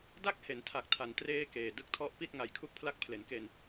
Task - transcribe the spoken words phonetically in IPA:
d a˥˩ k̚ h e˩˦ n tʰ a˨˩ k̚ tʰ a˩˦ n t r eː˥˩ k eː˨˩ d ɯ˥˩ k̚ tʰ ɔ˦˥ ʔ p i˥˩ t̚ ŋ a˨˩ j kʰ u˥˩ k̚ pʰ l a˦˥ k̚ pʰ l e˩˦ n k e˧ n

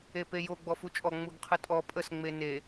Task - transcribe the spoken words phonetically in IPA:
e p e j o ɡ͡b ɔ f u t͡ʃʼ ɔ ŋ͡m u ɡ qʰ ɨ tʼ ɔ pʼ ə s ŋ͡m e n e

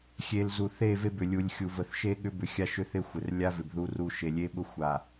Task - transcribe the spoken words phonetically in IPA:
xʲ e˨ l z u˨ θ e˦˨ v e˦ b ʏ˨ lʲ u˨ lʲ xʲ u˨ v ə˨ θ ʃ e˦ ɠ ʏ˦ b ʏ˨ xʲ a˦ ʃ ʏ˦ θ ɪ˦ xʷ ɪ˨ r lʲ a˦ v ɪ˨ b ð u˦ r u˦ ʃ e˨ lʲ e˦ ɓ ʊ˦ xʷ a˨

